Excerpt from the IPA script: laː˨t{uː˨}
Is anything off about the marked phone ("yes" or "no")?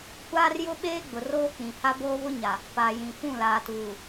no